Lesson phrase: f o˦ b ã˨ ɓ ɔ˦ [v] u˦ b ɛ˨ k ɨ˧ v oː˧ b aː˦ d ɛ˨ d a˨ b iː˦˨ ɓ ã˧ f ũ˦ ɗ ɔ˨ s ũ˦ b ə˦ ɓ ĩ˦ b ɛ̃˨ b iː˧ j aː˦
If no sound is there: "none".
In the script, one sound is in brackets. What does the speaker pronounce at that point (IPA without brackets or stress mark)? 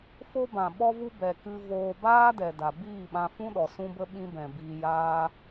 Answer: v